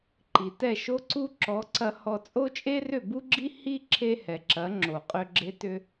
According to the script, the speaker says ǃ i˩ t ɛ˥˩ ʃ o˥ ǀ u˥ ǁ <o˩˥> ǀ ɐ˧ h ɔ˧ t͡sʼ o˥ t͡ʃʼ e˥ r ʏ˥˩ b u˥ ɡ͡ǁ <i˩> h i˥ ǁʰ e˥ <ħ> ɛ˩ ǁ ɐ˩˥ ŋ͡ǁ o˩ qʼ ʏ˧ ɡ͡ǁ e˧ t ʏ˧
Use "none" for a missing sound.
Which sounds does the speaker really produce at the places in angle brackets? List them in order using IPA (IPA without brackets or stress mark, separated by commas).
ɔ˩˥, i˥, h